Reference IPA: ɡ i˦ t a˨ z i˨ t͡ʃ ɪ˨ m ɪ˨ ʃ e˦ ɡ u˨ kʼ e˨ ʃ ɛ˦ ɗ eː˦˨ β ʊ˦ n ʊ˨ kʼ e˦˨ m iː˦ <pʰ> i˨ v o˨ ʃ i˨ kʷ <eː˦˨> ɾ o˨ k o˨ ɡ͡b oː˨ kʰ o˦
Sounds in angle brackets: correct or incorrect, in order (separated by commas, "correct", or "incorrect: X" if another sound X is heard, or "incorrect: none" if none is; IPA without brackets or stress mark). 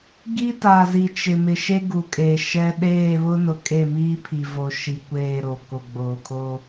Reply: correct, correct